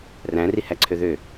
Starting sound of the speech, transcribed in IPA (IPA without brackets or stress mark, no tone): r